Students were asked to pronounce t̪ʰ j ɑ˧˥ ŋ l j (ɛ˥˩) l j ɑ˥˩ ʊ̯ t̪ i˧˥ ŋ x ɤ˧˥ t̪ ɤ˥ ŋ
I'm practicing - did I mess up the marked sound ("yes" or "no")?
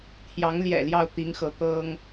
yes